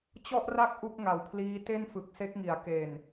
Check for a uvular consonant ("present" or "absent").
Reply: absent